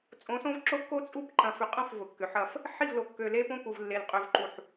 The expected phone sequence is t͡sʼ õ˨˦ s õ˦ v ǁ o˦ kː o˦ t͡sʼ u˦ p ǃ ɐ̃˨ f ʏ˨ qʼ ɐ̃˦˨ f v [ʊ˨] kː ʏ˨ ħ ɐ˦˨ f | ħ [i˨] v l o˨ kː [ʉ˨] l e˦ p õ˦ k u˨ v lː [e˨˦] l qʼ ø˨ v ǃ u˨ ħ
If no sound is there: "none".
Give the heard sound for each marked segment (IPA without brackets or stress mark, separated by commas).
ʊ˨, i˦˨, ø˨, e˨